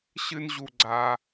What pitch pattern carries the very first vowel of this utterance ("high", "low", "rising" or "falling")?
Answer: high